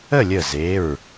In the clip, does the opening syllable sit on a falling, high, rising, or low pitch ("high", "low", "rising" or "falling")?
falling